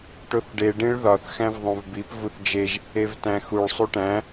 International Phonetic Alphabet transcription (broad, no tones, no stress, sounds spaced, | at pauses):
ʈ o θ ɖ e ɖ ĩ ɭ ð ɒ θ x æ̃ v ðˤ õ v b i p v u θ d͡ʒ e ʒ | e v t æ̃ x u ɭ sˤ u ʈ æ̃